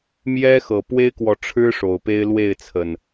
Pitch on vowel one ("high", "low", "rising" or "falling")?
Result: high